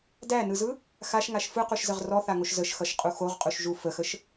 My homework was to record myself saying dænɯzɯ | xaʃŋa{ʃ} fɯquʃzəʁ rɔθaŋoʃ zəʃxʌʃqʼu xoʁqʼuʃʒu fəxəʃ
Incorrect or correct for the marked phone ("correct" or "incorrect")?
correct